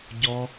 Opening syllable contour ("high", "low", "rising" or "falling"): high